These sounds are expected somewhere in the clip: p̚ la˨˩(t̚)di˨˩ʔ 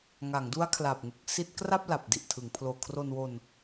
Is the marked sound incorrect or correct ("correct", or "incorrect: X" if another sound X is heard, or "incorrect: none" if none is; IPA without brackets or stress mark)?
incorrect: p̚